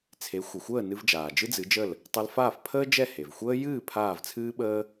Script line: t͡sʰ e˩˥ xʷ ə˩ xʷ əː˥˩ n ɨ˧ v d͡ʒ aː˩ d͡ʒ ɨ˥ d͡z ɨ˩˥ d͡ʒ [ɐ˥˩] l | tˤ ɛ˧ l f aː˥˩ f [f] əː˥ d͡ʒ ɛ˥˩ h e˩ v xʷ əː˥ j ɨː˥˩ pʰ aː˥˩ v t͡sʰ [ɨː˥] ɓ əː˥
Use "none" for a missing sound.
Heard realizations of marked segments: ə˥˩, pʰ, ɨː˥

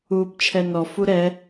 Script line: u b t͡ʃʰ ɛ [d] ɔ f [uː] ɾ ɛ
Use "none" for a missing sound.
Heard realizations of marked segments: n, u

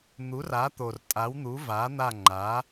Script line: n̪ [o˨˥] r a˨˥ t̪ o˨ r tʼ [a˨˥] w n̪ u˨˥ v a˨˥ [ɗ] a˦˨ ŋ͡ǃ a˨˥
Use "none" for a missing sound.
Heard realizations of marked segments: u˨˥, a˨˥, n̪

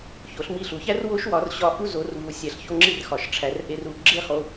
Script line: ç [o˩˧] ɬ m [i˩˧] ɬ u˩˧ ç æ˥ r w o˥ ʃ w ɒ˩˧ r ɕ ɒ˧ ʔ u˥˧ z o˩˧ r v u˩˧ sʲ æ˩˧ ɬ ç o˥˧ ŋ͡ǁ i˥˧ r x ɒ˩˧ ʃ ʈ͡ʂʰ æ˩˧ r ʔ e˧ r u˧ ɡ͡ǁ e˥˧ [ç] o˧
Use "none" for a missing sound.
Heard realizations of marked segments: o˩˧, i˧˩, χ

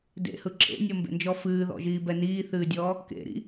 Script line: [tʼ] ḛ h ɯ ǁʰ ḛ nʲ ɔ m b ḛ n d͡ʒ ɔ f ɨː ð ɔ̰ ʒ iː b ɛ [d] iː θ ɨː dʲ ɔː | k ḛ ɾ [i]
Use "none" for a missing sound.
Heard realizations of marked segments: d, n, ḭ

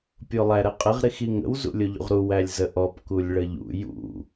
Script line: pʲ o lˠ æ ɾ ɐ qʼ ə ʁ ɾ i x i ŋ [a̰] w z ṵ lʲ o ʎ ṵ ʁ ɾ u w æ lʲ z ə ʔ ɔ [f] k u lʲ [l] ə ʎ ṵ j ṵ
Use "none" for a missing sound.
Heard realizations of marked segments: ə̰, p, ɭ

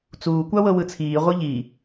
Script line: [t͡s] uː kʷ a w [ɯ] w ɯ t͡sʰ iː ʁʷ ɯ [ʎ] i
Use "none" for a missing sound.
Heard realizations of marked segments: t͡s, ɤ, ʎ

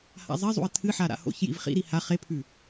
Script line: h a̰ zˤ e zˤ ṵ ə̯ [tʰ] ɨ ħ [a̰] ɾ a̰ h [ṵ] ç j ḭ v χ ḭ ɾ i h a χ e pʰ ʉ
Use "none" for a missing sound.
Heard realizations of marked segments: tʰ, a, o̰

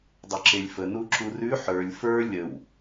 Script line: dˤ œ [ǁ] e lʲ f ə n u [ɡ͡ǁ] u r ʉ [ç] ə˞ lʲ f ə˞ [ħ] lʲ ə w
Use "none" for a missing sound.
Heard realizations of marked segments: ǁ, ǁ, ħ, none

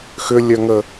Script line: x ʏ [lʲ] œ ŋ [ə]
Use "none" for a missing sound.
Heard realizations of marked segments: lʲ, ə

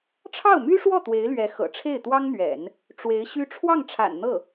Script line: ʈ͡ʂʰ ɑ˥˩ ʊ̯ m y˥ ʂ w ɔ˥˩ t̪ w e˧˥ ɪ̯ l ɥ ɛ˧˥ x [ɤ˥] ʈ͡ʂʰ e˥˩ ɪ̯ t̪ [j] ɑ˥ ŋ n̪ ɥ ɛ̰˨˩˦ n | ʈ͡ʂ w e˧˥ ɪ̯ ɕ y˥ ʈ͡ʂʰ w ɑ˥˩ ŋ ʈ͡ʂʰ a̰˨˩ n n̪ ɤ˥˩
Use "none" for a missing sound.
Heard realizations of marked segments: ɤ̰˨˩, w

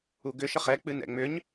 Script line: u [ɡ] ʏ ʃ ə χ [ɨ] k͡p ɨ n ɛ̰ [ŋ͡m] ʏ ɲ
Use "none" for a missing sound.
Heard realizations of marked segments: ɡ, ɛ, ŋ͡m

